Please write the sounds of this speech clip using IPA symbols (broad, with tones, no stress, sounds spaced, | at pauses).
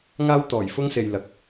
ŋ aː˥ w t̪ ɔː˨˩ j f ʊ˥ ŋ s e˨ j l ɐ˨˥ k̚